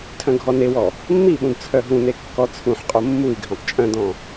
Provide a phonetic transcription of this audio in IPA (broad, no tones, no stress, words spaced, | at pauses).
tʰœ̃ɡʱɔnewɔ | mːiɓũd t͡sʰœɦũne kːɔt͡sʰũħqʼo mːui̯ɡʱœ̃tˤ t͡ʃʼœ̃dɔ̃